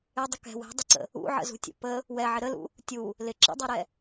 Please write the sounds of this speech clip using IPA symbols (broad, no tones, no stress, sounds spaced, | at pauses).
ɪ dˤ ə k ɛ̤ w ɛ̤ dˤ ɪ ǀ ə̰ | ṵ ʕ ə̰ z ṳ tʲ ṵ p ə | w ɛ ʕ ɪ ɾ ə l ṵ | tʲ u | l ɪ ǁ ə̰ dˤ ʌ ɾ ɛ